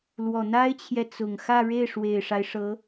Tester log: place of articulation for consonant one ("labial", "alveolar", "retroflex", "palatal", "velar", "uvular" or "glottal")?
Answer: alveolar